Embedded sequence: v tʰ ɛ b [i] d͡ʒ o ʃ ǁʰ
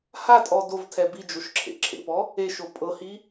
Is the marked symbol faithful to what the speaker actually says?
yes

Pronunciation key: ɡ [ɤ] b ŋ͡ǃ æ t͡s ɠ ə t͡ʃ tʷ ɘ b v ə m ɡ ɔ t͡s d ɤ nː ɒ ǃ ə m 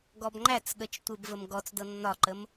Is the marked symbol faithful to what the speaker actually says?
no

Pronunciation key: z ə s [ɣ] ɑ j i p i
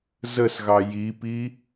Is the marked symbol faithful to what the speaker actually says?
yes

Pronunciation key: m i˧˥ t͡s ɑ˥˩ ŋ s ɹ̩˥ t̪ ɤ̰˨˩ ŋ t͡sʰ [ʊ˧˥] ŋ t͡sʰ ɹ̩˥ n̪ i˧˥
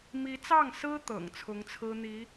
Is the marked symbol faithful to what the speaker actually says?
yes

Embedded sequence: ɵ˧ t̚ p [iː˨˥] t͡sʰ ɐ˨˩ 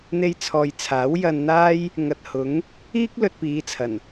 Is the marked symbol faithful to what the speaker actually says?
no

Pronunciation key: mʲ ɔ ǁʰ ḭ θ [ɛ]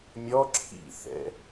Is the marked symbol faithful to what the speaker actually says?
no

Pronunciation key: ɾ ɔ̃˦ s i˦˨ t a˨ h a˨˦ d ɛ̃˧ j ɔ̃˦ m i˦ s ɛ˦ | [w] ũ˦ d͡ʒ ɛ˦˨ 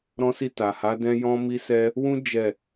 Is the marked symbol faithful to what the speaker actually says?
yes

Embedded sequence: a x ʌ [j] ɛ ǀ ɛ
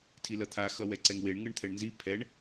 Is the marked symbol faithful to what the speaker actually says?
no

